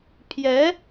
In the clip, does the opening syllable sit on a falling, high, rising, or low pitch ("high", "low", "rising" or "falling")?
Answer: rising